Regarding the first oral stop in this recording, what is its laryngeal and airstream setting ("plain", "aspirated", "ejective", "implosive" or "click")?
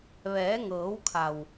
aspirated